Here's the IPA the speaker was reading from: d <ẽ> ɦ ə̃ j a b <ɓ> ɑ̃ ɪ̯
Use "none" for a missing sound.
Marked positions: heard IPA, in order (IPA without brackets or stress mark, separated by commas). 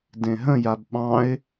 ẽ, ɓ